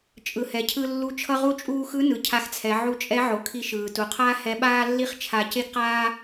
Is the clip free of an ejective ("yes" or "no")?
no